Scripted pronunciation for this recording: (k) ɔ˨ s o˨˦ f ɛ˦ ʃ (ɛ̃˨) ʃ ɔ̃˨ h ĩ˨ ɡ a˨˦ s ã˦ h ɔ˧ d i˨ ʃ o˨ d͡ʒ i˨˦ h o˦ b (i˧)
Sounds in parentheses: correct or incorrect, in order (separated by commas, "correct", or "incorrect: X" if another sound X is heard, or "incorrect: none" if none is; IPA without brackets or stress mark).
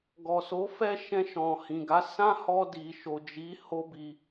incorrect: ɡ, incorrect: ɛ̃˧, correct